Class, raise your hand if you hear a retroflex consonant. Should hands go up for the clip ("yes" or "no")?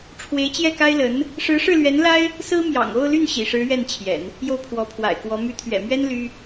yes